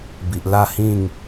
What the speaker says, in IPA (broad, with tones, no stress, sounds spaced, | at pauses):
b i˨ ʔ l a˥˧ h ĩ˥˧ ŋ